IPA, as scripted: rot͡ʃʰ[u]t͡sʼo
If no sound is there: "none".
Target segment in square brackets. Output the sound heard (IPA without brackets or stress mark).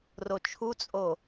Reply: u